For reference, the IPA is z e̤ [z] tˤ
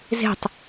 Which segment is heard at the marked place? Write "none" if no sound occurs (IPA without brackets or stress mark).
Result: none